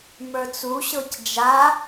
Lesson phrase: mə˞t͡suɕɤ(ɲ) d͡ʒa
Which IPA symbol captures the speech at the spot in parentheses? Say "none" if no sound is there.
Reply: c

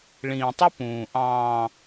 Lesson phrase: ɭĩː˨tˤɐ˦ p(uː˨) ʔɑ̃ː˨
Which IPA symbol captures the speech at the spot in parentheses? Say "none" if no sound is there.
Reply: ũː˨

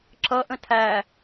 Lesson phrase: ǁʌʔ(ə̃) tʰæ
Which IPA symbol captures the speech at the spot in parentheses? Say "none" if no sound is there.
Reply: ə̃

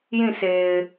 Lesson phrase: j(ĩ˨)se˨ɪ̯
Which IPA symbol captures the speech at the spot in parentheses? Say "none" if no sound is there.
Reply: ĩ˦˨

